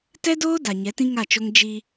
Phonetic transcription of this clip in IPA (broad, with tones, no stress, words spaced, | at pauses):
tɛ˦doː˦ da˨ɲɛ˨˦tĩ˦ ŋa˦˨t͡ʃo˦ŋ d͡ʒi˦